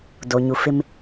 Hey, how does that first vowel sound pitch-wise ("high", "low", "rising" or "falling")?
low